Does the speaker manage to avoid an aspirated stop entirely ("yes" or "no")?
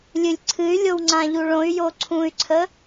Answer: no